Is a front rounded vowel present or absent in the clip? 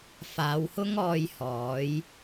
absent